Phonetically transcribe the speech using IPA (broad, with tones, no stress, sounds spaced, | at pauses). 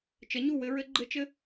t͡ʃ ə˨˦ ɲ u˦˨ w ɘ˦ ɹ ɘ˦ ɡ͡ǃ ɘ˦ t͡ʃ ɘ˦